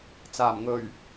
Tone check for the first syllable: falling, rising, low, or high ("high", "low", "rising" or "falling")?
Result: low